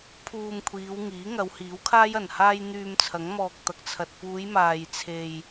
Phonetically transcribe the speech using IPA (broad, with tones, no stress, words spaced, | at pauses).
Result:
pʰuː˧mkʷʰiː˨˧wŋiː˨˥ ŋɐ˨˧whiː˨˥wkʰaː˥j ɐ˨˩nhaː˧j n̪yː˧mt͡sʰɐ˨˥ŋ mɔː˨k̚t̪ɐ˨k̚t͡sʰɐ˨t̚ puː˨˧jmaː˨jt͡sʰe˨j